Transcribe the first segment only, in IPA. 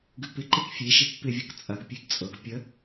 ɡ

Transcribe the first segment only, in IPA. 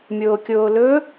mʲ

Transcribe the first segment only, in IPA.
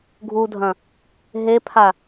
ɡʱ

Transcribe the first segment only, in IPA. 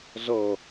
z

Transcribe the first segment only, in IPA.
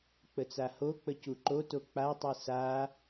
k͡p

